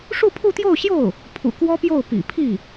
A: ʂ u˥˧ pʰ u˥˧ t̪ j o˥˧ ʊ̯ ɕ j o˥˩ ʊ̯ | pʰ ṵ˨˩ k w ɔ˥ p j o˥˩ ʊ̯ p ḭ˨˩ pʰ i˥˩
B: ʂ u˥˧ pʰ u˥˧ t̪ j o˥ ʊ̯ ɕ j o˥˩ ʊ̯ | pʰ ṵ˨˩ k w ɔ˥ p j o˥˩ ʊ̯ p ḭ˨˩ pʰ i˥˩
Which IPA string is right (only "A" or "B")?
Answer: A